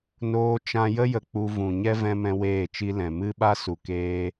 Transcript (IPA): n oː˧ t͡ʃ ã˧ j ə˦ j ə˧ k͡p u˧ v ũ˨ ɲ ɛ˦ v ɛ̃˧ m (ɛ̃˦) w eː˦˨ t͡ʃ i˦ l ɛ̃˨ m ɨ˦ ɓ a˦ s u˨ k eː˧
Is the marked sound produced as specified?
yes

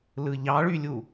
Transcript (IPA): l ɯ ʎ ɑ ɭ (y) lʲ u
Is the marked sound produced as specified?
yes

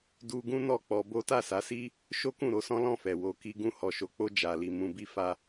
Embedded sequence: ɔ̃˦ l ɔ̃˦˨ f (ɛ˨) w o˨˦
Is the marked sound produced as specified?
yes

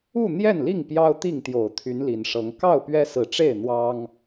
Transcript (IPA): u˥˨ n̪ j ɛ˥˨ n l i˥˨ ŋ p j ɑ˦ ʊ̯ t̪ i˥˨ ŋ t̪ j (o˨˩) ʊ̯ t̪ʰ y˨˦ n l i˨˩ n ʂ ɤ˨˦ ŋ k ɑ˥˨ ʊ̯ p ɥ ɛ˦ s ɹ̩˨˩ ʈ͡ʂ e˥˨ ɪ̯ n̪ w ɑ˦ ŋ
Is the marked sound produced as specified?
yes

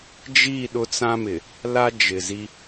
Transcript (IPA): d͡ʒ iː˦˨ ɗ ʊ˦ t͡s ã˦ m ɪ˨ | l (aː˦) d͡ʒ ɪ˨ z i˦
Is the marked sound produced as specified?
no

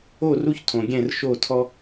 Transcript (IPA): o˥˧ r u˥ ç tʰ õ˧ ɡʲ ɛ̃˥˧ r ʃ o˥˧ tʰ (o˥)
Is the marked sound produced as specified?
no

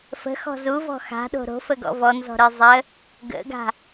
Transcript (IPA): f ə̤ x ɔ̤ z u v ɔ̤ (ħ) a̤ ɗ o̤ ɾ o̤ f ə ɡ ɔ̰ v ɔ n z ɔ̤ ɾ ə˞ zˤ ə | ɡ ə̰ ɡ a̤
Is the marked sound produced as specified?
no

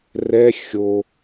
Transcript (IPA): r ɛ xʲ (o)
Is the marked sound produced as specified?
yes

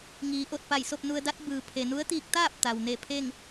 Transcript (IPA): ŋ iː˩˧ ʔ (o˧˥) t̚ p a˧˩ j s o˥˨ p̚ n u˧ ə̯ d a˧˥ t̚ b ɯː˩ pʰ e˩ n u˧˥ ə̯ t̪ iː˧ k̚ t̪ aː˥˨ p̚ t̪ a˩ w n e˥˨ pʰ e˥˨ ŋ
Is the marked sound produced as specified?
no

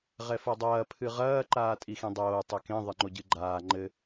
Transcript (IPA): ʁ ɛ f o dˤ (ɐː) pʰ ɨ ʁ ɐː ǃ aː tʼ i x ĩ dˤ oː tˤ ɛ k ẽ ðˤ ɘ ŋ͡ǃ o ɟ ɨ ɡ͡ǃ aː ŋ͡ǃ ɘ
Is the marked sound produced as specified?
yes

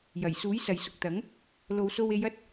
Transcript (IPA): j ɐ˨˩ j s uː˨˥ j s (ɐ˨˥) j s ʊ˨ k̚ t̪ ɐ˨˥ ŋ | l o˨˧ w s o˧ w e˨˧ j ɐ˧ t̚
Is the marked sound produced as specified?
no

